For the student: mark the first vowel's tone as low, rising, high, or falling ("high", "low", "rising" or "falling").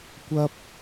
high